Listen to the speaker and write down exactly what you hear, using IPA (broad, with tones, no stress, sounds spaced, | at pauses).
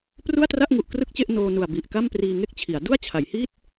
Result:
p r u˥˩ a̯ t r a˥˩ ʔ ŋ u˨˩ ʔ k r ɯ˥˩ k̚ t͡ɕ e˥˩ ʔ n oː˧ n u˨˩ a̯ b i˨˩ ʔ k a˥˩ m p r iː˧ ŋ e˥˩ k̚ t͡ɕʰ i˩˦ a̯ d u˥˩ a̯ t͡ɕʰ a˩˦ j h i˥˩ t̚